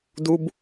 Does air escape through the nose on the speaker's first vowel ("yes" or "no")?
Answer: no